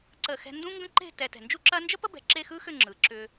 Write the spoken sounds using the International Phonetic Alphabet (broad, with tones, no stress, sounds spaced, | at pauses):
ǀ ə˧˩ x ɛ̤˧ n d ũ˥ ŋ ɡ ə̃˥ ǃ e̤˥˧ t ɛ˧ t ɛ̤˧˩ n d͡ʒ u˥ ǁ ɐ˥ n d͡ʒ ə˥ p ə˥ b ɛ̤˧˩ ǁ e˥˧ x ɯ˥ x ʏ˥˧ ŋ͡ǁ ɯ˩˧ ǁ ʏ˧